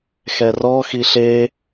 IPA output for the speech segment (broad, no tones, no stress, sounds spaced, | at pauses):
x ɛ r ɔ x i ɬ e